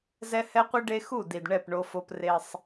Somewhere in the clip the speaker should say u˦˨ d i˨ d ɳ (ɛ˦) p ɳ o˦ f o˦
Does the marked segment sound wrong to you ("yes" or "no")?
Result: yes